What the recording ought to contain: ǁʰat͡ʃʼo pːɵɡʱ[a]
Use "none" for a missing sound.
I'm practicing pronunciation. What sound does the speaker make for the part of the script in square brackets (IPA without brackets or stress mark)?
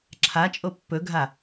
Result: a